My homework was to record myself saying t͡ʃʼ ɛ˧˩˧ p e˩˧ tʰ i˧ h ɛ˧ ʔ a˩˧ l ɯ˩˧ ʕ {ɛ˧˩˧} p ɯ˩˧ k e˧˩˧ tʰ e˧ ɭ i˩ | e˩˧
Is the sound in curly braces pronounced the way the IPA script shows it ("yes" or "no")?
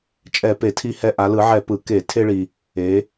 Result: yes